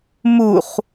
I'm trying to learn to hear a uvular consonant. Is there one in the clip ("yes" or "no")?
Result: yes